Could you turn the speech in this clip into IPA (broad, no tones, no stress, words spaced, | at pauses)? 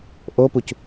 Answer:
ʔopuc